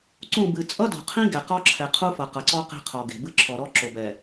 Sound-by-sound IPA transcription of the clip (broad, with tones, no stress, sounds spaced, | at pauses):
ǀ ũ˦˨ b ɨ˨ t͡sʼ ʌ˦ d o̤˨ qʰ ĩ˦ ɡ ɛ˨ q ɔ˦ ǁʰ ɛ˨ qʰ u˦ f ʌ˨ q ʌ˨ ǀ ɔ˦ q e̤˦ qʰ ɔ˨ ɡ e̤˨ b ɨ˦ ǁʰ ɔ˨ ɾ ɔ˦ ǁ o˨ b ɛ˨